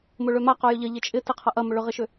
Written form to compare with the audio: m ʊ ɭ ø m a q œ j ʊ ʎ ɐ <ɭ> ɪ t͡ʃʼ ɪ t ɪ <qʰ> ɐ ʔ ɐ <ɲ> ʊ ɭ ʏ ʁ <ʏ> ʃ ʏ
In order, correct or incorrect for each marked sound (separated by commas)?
incorrect, correct, incorrect, incorrect